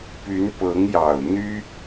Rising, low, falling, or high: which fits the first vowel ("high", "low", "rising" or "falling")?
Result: rising